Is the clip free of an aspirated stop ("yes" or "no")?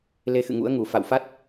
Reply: yes